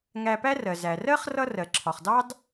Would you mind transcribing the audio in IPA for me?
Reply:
ŋ æ˧ p æ˥ r ɜ˩ z æ˩ r ɜ˥ χ r ʌ˥ r ɜ˩ ǁʰ ɒ˩ χ d ɑ˥ d

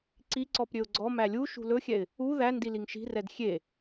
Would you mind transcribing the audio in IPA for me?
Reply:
ǀ i ǀ ɔ p ɾʲ ø ʊ̯ ɡ͡ǀ ɔ m æ lʲ u ʃ ṳ l ɵ xʲ ɛ ɪ̯ | u ð æ n d i l i ŋ ʃ i̤ r ɛ d xʲ e

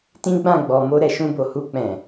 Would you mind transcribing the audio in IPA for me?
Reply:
t ĩ˦ ɡ͡b ã˦˨ ɡ͡b ɔ˨ m o˧ ɾ ɛ˨ ʃ ũ˧ b o˨ h u˧ k͡p ɛ̃˨

